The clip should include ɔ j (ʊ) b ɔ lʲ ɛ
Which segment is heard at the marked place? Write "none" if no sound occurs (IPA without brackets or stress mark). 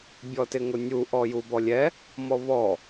u